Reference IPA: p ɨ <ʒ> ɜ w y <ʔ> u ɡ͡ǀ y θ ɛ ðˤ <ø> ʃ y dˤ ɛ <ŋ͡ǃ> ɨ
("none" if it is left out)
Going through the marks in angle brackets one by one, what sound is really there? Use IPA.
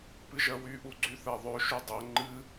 ʒ, ʔ, ø, ŋ͡ǃ

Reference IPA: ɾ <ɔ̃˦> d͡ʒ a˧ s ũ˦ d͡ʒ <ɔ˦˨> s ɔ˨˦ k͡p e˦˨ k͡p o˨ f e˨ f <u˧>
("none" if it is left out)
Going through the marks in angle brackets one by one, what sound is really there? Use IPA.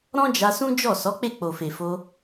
ɔ̃˦, ɔ˦˨, o˧

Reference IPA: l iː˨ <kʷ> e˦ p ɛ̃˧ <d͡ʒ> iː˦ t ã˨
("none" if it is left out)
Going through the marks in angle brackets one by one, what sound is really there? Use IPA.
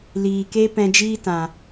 k, d͡ʒ

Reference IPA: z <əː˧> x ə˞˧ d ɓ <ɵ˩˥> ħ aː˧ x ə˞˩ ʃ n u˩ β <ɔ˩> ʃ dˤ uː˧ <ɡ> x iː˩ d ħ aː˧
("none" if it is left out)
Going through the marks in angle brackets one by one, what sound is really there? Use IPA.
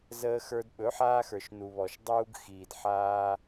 əː˧, ɵ˩˥, ɔ˩, ɡ

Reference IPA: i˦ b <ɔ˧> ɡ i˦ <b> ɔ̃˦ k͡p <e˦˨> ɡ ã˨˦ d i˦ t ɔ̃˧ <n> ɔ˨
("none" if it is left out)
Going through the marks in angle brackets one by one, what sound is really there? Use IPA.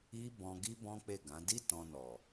ɔ̃˧, b, e˦˨, n

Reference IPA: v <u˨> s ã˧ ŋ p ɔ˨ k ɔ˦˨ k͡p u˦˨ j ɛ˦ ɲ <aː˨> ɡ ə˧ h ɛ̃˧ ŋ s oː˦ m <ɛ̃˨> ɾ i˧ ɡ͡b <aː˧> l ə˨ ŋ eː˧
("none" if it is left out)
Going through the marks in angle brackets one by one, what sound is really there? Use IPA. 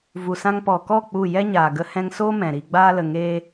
u˨, aː˨, ɛ̃˨, aː˧

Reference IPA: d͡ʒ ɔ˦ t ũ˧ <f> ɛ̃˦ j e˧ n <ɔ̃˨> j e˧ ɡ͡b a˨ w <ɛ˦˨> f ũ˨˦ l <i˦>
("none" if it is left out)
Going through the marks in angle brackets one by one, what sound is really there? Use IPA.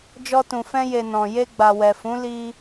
f, ɔ̃˨, ɛ˨, i˦

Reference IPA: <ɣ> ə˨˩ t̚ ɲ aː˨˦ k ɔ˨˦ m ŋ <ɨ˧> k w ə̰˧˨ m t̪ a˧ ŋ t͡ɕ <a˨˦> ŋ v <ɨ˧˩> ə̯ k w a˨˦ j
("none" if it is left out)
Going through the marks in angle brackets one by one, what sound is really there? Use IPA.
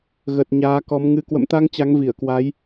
ɣ, ɨ˧, a˨˦, i˧˩

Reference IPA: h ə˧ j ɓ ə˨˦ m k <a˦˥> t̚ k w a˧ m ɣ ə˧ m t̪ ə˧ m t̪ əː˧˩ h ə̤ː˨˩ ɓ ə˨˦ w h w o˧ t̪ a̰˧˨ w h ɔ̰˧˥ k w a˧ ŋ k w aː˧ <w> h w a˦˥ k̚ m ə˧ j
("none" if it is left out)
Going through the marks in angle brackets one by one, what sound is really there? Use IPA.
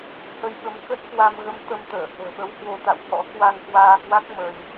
ə˦˥, none

